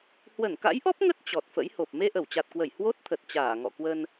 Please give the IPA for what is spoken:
h w ə˧˩ n k a̰˧˥ j ʔ ɔ˦˥ p̚ ŋ ə˦˥ t̚ t͡ɕ ɔ˨˩ t̚ f ə̰˧˥ j h o˨˩ p̚ m e˧ ʔ ə˧˩ w t͡ɕ a˨˩ t̚ k w ə˧˩ j h w o˦˥ t̚ t̪ʰ ə˨˩ t̚ t͡ɕ aː˧˩ ŋ ɔ̰˧˨ k w ə˧ n

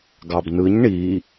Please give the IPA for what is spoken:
ɡ ɑ b n ɯ ɲ ɳ i

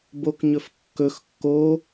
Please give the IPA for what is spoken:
b o k ɲ ɵ f kː ɵ x kː o

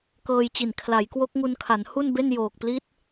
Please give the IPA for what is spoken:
k ɤː˧ j t͡ɕ i˨˩ n kʰ l a˩˦ j k w o˦˥ k̚ ŋ u˧ n kʰ a˩˦ n h u˥˩ n b e˥˩ n j oː˨˩ k̚ p l i˦˥ t̚

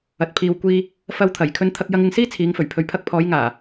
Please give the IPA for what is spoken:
ɐ˨ t̚ pʰ iː˨ w kʷ iː˧ | f ɐ˧ w t̪ʰ ɐ˨˩ j kʰ ɵ˧ n t̪ʰ ɐ˧ k̚ j ɐ˧ ŋ ɪ˧ ŋ s iː˥ t͡sʰ iː˨˧ ŋ f ɵ˨˩ ɥ pʰ ɵ˨ ɥ pʰ ɐ˧ k̚ pʰ ɔː˨˧ j ŋ aː˨˩

